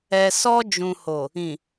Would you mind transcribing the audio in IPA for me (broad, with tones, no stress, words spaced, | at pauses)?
ɛ˨sɔ˧ d͡ʒũ˨ho˨ | ĩ˨